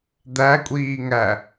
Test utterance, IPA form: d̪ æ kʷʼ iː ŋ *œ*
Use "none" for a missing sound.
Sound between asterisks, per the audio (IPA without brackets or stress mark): æ